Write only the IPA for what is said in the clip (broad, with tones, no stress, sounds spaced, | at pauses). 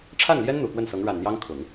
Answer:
ʈ͡ʂʰ a˥˩ n l j ɛ˥ n n̪ u˨˩ k w ə˥˩ n s ɤ˧˥ ŋ ɻ a˨˩ n n̪ j ɑ˥ ŋ kʰ ʊ˨˩˦ ŋ